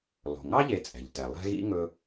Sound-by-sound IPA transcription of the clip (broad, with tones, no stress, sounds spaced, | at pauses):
lˠ o̤˩ ŋ ɑ˥ ʎ e˨ t͡sʼ ɛ̤˩ ʎ t ɛ˩ lˠ ɛ̤˦ ɣ ḭ˥ ŋ ɵ˦